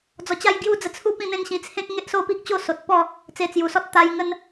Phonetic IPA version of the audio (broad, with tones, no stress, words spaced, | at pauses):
d͡zɔ˧t͡ɕa˥˧jɡju˥˧d͡zə˧ t͡sʰu˥˧pĩ˥˧n̪ẽ˥˧nɕĩ˧ t͡sʰẽ˦k̚ŋe˦ʔso˦pi˦k̚ t͡ɕo˦so˨t̚pɔ˥˧ | t͡se˧t͡sju˨˩sɔ˦t̚ t̪a˧j ŋə˦n